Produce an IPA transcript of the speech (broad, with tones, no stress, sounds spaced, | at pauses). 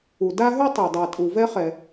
u˩ d a˥ ɦ ʉ˥ tˤ e˩ dˤ ɛ˩ tʼ u˩ v ɛ˥ χ ɛ˩